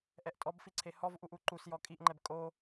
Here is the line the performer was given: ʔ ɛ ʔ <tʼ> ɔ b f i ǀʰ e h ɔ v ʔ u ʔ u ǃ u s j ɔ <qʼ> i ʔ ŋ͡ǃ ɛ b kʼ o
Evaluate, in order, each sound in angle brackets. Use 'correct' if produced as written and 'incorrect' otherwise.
correct, incorrect: kʼ

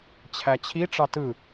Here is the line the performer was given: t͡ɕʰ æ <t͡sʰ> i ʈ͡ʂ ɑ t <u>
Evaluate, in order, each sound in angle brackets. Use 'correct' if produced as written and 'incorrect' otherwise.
incorrect: t͡ɕʰ, incorrect: ɯ

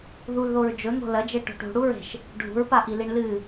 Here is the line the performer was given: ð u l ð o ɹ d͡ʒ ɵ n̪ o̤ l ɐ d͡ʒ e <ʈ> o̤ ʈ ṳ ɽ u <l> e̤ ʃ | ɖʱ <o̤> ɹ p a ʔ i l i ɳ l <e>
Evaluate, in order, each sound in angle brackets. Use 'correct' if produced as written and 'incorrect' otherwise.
correct, incorrect: ɹ, incorrect: ṳ, incorrect: ɨ

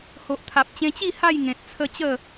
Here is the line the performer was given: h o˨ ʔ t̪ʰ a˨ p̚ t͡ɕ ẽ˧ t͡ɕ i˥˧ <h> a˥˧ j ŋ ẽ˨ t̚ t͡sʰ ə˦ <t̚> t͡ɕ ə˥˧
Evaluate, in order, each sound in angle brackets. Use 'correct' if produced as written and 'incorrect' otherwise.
correct, incorrect: none

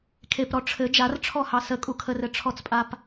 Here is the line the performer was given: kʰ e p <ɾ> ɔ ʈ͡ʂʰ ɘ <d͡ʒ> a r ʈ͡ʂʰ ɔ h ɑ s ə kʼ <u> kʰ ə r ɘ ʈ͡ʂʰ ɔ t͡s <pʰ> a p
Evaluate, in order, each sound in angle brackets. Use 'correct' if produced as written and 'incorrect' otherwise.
correct, correct, correct, incorrect: pʼ

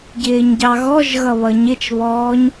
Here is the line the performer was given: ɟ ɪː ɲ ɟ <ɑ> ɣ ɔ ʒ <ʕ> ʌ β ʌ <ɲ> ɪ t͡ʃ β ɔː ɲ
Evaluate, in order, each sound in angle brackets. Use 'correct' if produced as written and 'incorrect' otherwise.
correct, incorrect: ɣ, correct

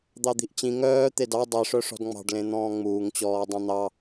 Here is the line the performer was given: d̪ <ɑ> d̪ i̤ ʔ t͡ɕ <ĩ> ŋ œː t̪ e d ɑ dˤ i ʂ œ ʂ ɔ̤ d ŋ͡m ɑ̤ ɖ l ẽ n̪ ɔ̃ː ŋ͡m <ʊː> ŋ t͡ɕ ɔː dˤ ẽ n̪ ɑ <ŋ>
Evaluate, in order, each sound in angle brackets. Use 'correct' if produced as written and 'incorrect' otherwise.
correct, correct, incorrect: uː, incorrect: none

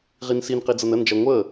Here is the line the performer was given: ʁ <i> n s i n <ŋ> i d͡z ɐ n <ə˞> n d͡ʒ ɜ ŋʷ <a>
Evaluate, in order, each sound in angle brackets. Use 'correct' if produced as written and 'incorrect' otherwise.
correct, incorrect: q, incorrect: ə, incorrect: ə

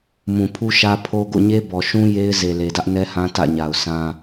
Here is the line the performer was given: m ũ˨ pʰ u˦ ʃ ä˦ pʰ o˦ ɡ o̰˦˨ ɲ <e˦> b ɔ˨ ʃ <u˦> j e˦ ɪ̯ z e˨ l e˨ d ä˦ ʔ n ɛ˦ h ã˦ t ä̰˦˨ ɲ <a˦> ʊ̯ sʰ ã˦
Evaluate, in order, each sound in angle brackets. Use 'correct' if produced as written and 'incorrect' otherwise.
correct, incorrect: ũ˦, incorrect: a˨

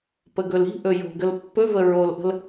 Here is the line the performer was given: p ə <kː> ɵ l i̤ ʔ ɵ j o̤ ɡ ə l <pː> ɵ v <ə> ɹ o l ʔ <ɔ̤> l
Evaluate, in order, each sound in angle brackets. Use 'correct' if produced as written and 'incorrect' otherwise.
incorrect: ɡ, correct, correct, incorrect: ə̤

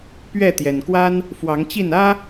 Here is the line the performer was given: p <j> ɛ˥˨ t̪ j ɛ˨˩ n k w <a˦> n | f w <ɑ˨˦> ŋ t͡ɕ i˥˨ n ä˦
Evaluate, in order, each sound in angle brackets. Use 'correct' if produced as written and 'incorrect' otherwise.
incorrect: ɥ, correct, correct

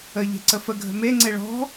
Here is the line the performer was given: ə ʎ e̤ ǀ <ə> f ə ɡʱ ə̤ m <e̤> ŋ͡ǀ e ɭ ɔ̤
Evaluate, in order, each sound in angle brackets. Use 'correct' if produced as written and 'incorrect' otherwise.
correct, incorrect: e

